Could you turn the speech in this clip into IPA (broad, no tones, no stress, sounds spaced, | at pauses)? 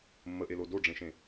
mː ə ʔ e l o d o ɖ͡ʐ ẽ ʃ ẽ